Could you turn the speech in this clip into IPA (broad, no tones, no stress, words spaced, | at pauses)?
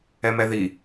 ɛmɛði